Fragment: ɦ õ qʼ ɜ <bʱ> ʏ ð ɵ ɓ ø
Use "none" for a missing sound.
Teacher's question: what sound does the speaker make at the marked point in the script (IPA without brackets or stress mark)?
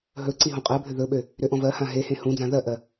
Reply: bʱ